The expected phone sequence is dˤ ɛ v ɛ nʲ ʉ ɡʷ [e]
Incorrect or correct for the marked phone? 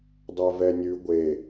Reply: correct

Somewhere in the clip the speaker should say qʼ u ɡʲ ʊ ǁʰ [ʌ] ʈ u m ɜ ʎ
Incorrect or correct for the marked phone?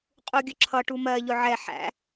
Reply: correct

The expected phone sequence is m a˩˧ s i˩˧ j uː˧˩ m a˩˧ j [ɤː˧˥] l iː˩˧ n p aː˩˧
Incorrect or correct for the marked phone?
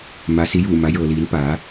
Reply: incorrect: ɤː˩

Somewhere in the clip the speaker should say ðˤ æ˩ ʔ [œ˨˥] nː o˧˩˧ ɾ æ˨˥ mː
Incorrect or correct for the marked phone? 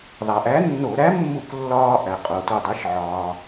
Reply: incorrect: æ˨˥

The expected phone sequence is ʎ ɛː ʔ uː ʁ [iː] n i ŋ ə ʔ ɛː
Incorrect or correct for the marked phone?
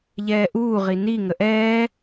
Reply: incorrect: i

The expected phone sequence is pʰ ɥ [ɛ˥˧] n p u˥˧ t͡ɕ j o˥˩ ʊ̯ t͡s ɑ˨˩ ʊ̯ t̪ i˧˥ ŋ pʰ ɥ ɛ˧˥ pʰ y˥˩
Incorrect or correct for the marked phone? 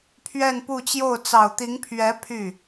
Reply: correct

